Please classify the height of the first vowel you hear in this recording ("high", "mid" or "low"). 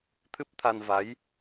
high